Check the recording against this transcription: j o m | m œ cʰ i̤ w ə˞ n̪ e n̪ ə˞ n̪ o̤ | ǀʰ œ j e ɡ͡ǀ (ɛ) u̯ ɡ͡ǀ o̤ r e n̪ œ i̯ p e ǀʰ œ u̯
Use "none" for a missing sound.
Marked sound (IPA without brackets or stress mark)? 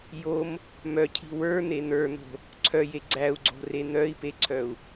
æ